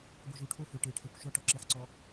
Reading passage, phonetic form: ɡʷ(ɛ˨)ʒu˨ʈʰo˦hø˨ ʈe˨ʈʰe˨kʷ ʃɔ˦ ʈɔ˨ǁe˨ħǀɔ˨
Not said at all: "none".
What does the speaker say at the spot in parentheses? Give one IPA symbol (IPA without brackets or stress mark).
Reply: ɨ˨